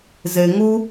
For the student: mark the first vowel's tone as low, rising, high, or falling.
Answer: low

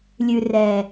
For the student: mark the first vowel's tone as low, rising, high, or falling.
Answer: low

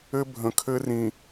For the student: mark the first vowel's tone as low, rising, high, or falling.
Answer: high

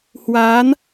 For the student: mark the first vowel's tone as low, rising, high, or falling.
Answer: rising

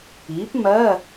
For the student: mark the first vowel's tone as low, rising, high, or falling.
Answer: rising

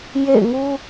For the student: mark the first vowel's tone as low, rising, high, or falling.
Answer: falling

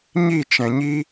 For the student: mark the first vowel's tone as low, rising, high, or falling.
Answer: falling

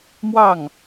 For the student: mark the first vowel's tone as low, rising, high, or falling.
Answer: falling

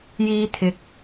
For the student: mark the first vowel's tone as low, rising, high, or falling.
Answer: high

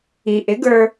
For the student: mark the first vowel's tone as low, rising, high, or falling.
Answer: low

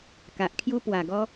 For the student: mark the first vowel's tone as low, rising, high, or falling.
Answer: low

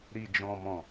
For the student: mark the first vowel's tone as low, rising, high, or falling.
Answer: low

